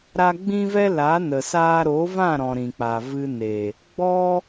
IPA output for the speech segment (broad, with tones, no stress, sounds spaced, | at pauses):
ɾ a˦ ɡ͡b ĩ˦ v ɛ˦ l a˨˦ n ə˨ s aː˦ ɾ o˨˦ v ã˦˨ ɾ ɔ̃˨ ɾ ĩ˨ k͡p a˨ v ɨ˧ n e˨ | ɡ͡b ɔ˦